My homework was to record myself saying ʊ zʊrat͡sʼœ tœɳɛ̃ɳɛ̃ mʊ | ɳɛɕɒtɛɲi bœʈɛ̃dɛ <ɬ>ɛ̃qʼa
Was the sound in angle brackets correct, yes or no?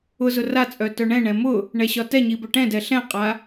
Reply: yes